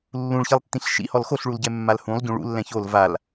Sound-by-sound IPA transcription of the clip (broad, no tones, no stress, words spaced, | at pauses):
lːũɭçilˠtːĩɬ ʃḭhɔl xoɬɭulɟɛ mːalhũlˠ ɟũɭṵlːɛ̃ çol val